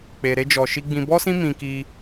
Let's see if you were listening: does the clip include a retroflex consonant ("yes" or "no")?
no